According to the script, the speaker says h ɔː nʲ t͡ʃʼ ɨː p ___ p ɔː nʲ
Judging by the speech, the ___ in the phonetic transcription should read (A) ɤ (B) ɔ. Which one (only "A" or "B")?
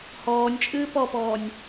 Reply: B